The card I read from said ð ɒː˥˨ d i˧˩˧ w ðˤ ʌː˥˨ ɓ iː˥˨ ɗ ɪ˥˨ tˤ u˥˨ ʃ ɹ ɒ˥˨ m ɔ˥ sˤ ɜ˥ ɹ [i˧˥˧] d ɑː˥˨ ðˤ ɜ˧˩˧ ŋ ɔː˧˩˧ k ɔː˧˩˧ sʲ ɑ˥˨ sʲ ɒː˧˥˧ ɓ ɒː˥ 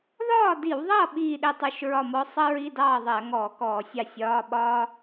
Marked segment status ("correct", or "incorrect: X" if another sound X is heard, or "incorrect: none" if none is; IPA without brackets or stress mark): correct